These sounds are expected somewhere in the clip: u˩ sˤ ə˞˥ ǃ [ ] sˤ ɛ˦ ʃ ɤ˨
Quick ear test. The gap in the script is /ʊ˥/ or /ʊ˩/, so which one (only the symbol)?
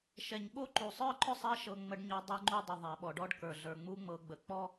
ʊ˥